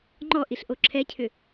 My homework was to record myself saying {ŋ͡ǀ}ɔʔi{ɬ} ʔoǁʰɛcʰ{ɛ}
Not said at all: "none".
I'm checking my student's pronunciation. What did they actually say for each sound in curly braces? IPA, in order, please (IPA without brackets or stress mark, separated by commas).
ŋ͡ǃ, ɬ, ʏ